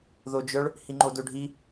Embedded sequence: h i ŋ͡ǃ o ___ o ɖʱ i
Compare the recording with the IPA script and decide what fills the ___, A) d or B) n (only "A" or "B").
A